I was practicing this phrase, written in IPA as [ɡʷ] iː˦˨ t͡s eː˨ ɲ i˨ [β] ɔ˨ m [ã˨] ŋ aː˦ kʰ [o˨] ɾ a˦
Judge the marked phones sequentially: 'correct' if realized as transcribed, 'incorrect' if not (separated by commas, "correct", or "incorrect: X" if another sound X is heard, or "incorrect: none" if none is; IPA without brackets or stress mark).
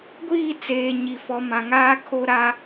correct, incorrect: f, correct, incorrect: o˦